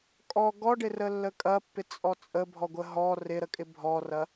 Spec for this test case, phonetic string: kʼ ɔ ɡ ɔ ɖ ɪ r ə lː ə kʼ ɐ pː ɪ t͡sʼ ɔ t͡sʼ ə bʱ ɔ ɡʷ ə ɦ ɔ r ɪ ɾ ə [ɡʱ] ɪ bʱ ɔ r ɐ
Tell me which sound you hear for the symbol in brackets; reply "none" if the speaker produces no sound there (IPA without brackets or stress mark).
kʼ